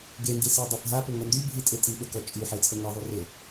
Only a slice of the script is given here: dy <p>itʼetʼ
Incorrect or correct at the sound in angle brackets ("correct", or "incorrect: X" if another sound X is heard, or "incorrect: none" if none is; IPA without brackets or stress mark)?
incorrect: bʱ